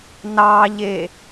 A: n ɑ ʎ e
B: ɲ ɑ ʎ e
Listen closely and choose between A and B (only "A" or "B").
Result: A